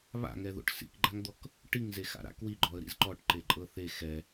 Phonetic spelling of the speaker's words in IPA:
βa̰ŋɛðo̰ʈ sḭkɡ͡ǃaŋd̪ɔk | ʈiŋzexa̰ɾa̰ kwiɡ͡ǃɔə̯ ɾḭzǃɔʈ ǃeǃʼɤθe xɛ

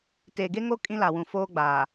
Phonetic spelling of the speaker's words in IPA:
teː˨ɡe˦ŋo˦ kʼĩ˦la˨wũ˨ foː˦ ɡ͡baː˨

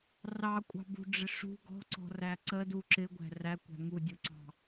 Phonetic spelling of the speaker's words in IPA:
rɑkʷʼɑ̤bṳɖ͡ʐɪ ʂṳ ɡɔ̤ǀɔ̤ræ ǀədu ǁɪɡʷæ̤ rækʷæ̤ ŋudʲuǀɑ̤

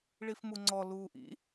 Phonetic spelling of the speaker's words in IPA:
ɭifmuŋ͡ǀɔ luːʔḭ

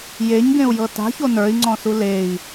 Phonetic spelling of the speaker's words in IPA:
jeɲɡẽu̯jɤ ta̤ço nə˞i̯ŋ͡ǀɔ̃su lei̯

